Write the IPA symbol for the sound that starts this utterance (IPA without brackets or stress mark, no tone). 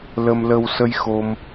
l